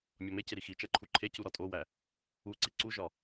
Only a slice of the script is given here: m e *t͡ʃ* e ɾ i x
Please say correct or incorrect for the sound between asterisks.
incorrect: c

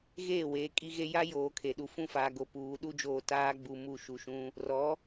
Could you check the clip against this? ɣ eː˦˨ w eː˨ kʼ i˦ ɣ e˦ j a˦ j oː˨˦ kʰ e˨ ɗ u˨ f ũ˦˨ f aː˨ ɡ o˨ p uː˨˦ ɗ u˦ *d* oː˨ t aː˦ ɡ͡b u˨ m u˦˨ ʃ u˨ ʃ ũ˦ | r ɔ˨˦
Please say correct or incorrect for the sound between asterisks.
incorrect: d͡ʒ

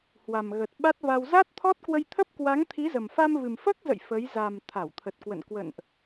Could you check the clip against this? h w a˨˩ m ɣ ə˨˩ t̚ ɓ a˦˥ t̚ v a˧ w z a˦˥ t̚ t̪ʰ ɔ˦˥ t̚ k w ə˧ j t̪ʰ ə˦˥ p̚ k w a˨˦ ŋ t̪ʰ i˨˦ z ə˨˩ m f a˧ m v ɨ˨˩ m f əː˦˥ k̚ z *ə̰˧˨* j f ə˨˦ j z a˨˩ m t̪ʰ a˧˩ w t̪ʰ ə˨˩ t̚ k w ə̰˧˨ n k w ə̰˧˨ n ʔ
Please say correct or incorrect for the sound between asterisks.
correct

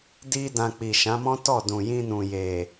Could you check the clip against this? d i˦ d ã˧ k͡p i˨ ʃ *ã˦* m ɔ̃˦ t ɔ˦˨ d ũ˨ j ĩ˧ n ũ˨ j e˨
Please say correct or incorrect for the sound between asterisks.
incorrect: ã˨˦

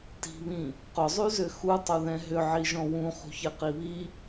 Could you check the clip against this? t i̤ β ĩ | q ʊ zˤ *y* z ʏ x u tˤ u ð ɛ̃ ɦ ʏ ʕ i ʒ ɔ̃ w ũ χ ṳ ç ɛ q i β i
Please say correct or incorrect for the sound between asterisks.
correct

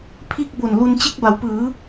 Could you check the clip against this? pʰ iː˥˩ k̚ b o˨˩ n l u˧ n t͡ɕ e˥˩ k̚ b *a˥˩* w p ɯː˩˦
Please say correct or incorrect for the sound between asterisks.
incorrect: a˩˦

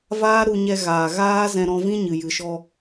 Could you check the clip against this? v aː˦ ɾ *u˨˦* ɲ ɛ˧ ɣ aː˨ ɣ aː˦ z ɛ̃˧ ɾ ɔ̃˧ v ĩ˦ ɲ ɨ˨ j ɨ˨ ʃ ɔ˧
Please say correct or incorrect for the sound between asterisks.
incorrect: u˧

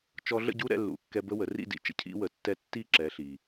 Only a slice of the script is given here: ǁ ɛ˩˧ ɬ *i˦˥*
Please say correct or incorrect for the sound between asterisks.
incorrect: i˩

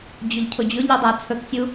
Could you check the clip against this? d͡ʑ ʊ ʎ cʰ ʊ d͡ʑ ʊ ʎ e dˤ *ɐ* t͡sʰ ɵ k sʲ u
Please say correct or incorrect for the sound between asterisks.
incorrect: æ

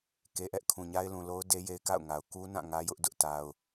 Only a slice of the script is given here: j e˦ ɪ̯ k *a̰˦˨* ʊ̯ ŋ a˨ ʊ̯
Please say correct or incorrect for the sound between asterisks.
correct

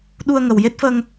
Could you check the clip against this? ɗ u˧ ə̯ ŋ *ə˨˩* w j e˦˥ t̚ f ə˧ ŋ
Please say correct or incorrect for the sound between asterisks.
correct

